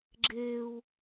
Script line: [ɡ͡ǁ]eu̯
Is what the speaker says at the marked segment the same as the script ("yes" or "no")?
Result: yes